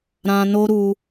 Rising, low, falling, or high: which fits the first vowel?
low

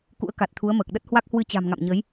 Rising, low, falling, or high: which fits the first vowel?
rising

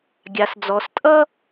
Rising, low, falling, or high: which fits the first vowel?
low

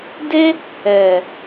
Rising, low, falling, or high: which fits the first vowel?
high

